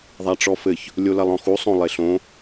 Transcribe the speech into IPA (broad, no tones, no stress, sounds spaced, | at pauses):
ðˤ a ʈ͡ʂ ɔ f ɘ ç | lʲ o l ɐ lˠ ɔ̃ x u sˤ õ lˠ e ɬ õ